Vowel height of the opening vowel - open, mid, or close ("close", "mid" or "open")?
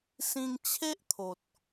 close